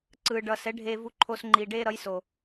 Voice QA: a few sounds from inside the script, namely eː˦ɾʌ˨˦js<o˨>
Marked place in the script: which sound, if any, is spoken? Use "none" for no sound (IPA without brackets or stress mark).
o˨